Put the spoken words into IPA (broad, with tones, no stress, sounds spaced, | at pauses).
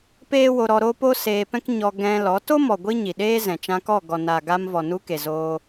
p eː˦ w o˧ ɾ ɔ˧ ɾ o˦ p o˦ s eː˧ p ɛ̃˦ k ɲ ɔ˧ ɡ ɛ̃˧ l ɔ˨˦ t o˦ m ɔ˨ ɡʷ i˦ ɲ i˨ ɗ eː˦ z ɛ̃˨ t͡ʃ ã˧ k ɔ˦˨ ɡ ɔ˨ n a˨ ɡ a˧ m v ɔ˨ n u˧ k e˨ z o˦